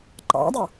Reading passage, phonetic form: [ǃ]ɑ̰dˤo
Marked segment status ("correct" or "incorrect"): correct